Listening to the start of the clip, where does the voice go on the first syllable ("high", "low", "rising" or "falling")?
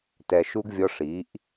low